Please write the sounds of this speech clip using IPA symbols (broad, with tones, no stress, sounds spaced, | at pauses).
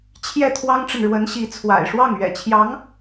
t͡ɕʰ j ɛ˥˩ t̪ʰ w ɑ˥ ŋ ʈ͡ʂ ə˨ n ɻ w ə˧˥ n ɕ i˧˥ t͡sʰ w a̰˨˩ ɪ̯ ʂ w ɑ˥˩ ŋ ɥ ɛ̰˨˩ t͡ɕʰ j ɑ˧˥ ŋ